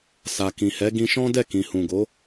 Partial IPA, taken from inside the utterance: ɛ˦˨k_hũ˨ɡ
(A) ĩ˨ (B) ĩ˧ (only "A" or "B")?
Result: A